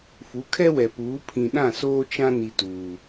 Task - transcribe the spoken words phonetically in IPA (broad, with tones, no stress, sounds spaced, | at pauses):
f u˨˦ kʰ ɛ˦ w ɛ˨ p uː˨˦ pʰ ĩ˨ ɗ ã˦˨ s oː˦ t͡ʃ ã˦ n i˨ t uː˨